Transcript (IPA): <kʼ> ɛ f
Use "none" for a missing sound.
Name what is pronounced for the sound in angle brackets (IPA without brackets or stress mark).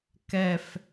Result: k